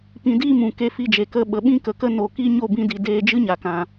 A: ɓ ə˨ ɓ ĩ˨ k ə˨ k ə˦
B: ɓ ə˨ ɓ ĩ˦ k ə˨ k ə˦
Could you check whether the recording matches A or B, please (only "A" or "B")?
B